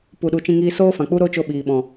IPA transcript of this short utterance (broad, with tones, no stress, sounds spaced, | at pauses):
p u˨ ɗ u˨ t͡ʃ ĩ˧ ŋ iː˧ s oː˦ f ã˨ k͡p u˦ ɾ o˦ t͡ʃ o˧ ɓ iː˨ ɓ ɔ̃˨